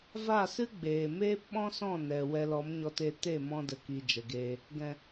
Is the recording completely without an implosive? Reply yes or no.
no